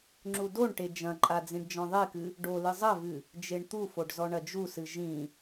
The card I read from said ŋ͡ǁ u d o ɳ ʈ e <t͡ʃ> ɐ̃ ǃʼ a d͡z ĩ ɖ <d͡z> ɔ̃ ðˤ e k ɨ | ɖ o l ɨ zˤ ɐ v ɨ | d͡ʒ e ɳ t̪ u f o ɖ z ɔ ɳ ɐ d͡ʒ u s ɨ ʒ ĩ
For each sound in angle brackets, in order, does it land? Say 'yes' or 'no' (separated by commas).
no, no